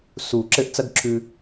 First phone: s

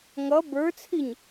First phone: ŋ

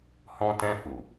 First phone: h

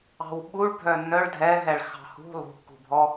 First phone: ɑ̤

